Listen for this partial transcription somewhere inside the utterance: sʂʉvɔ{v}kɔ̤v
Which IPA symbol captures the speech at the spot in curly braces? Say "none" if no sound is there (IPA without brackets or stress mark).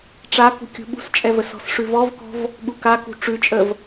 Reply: v